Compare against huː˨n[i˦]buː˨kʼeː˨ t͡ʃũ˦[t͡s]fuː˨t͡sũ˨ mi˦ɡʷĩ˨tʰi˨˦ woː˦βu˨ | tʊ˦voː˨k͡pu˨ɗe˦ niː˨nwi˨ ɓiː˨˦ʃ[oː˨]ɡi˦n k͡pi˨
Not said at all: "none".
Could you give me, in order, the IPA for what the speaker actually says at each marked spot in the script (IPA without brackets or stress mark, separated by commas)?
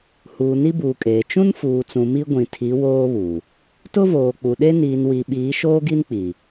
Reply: i˦, n, oː˦